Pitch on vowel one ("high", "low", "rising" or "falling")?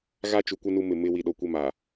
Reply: high